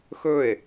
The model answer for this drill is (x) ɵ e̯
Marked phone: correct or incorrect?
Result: correct